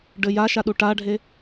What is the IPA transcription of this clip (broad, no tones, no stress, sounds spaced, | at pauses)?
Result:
ɖ ɘ j a ʃ a ɗ u ʈ a ɖʱ e